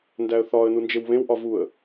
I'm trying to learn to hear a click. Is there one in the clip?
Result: no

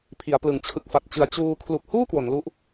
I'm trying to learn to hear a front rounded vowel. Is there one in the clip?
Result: no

